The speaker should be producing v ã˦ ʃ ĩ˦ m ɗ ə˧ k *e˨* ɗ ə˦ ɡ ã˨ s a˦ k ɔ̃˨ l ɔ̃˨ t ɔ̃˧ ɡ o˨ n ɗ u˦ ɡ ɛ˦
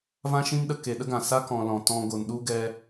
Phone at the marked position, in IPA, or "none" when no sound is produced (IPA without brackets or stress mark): e˨